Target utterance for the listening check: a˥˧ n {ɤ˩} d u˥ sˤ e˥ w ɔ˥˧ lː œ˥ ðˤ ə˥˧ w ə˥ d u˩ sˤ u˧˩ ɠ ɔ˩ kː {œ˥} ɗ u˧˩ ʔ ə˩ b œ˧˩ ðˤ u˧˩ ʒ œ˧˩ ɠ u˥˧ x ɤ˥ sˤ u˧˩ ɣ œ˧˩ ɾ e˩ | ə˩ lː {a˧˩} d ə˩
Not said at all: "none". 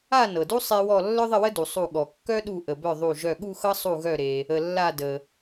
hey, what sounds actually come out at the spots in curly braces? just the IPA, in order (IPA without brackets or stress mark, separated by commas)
ɤ˩, œ˥, a˧˩